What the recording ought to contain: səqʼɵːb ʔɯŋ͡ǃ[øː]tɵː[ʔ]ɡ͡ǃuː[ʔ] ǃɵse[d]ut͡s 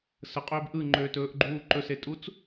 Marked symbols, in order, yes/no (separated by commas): yes, yes, no, no